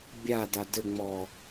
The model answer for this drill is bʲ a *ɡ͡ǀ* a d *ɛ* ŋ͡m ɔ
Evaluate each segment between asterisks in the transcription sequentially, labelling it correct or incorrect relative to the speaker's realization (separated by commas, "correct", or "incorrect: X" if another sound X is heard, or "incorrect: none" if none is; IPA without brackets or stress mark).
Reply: incorrect: d, incorrect: ɘ